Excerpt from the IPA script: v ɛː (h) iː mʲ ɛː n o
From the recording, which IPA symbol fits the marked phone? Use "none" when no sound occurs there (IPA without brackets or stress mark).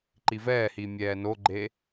h